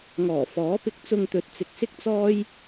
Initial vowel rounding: rounded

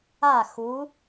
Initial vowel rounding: unrounded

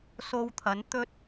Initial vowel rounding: rounded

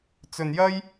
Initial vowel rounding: rounded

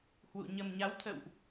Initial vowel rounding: rounded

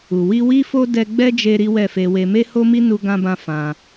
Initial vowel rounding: rounded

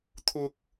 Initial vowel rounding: rounded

